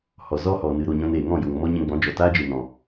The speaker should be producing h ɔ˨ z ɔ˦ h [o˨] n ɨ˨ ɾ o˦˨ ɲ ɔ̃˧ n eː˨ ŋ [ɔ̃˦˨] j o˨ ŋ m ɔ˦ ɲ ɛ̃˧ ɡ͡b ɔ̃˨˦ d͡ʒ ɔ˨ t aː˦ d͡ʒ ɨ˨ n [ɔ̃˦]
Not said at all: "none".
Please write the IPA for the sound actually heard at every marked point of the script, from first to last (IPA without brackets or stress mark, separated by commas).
ɔ˨, ɔ̃˦˨, ɔ̃˨